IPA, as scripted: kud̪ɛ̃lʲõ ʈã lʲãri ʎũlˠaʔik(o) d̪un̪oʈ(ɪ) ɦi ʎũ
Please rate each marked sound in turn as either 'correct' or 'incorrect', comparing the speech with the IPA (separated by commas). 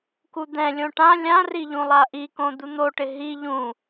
incorrect, correct